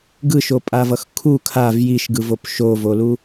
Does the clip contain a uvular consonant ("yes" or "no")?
no